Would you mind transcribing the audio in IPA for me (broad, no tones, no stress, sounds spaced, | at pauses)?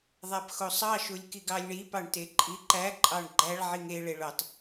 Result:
ðˤ æ p x o sˤ ɑ ʃ u lʲ k i ɡ ɑ lʲ ɳ i p ɑ ɳ t e ǃʼ i ǃ æ ǃʼ ɑ ɳ ɡ͡ǃ æ ɭ ʕ i ŋ e ɭ e ɭ o tˤ